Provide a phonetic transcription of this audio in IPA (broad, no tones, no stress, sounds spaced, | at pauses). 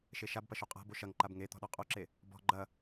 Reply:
ʃ e ʃ a b p ɐ ʃ o qʼ a̤ b o ʃ ɐ ŋ ǃ a b ŋ e t̪ ɔ̤ ɗ ɔ qʼ o ǁ e | b ɔ̤ ɡ͡ǃ ɐ